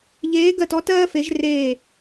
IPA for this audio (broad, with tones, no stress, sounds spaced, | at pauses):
ʎ eː˧˥ ɡ ɜ˦˨ t ɔ˥ t ɜː˥ f e˧˥ ʒ r eː˦˨